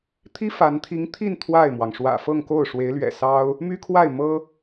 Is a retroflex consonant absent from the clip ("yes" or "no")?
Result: no